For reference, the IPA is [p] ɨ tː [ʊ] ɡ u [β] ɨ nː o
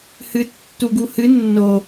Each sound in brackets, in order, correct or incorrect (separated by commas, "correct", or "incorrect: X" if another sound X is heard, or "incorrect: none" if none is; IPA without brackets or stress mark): incorrect: h, incorrect: u, incorrect: h